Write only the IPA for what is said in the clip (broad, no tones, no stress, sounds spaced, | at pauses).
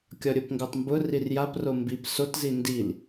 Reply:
kʲ ɒ ɾʲ o p ŋ ɡ o tˤ m b ʊ r i r j a p r o m b i p s o t z i n d i l